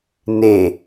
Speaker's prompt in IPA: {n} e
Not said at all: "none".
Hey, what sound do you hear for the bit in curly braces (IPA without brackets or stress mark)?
n